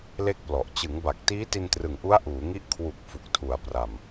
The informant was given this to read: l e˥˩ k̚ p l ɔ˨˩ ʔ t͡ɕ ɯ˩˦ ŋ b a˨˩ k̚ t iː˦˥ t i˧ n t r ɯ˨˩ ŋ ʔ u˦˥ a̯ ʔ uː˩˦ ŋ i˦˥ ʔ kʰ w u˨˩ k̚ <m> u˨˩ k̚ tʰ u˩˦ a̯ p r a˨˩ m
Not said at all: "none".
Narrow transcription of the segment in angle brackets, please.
f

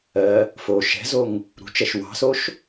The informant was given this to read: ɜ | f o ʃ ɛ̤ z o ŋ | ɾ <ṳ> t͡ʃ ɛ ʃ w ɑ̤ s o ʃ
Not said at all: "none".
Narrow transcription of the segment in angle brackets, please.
ṳ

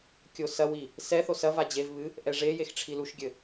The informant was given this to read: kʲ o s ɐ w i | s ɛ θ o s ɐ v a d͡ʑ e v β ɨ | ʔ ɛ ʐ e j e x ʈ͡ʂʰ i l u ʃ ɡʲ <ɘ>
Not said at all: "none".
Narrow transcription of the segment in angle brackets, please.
ɘ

